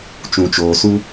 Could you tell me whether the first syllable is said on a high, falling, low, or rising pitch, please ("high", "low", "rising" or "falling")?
low